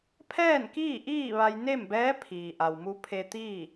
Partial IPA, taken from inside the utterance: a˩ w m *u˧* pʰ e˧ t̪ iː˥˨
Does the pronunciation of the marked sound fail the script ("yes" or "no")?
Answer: no